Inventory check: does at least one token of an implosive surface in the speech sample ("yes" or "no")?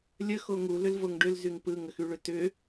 no